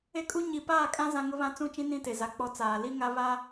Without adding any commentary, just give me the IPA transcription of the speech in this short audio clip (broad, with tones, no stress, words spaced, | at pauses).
e˦kʼu˦ ɲi˨paː˦˨kʼã˦ zã˦ŋʊ˦βã˦ t͡sũ˦˨t͡ʃĩ˦ nĩ˦te˨za˨ k͡pɔ˦t͡saː˨ li˦ŋa˦ βa˦